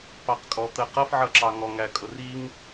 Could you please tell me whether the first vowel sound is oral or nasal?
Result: oral